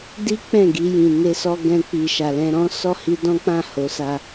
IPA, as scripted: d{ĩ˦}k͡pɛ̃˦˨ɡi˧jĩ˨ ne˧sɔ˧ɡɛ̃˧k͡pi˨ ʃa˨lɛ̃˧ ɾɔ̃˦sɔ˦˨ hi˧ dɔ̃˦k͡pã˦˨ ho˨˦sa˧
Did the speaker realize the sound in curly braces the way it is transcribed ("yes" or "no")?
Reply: no